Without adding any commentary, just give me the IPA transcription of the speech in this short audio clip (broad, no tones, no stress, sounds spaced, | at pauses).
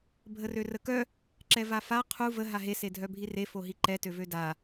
bʱ ə r ø r ə k œ | ǁ ɛ v a f a qʰ u v ə ɦ a ɦ e s e dʱ œ bʱ i r e f o ɦ i ǃ ɛ t ø v ø d a